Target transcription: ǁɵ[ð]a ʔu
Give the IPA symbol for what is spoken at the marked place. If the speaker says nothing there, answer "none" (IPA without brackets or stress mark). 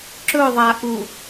ðˤ